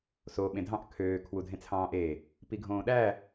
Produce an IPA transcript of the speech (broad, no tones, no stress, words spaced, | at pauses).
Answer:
so ɓẽdʱɑ̃ʔ kʰøː kʰwudʱẽt͡sʰɑ̃ːʔe | piɡʱõːɗæ